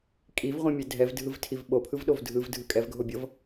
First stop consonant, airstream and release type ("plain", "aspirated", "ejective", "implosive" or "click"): ejective